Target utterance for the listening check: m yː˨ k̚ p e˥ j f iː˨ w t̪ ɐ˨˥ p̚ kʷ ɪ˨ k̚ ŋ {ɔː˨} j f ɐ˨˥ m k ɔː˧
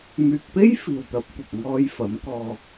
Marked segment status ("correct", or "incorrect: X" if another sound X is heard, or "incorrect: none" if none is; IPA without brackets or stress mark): incorrect: ɔː˧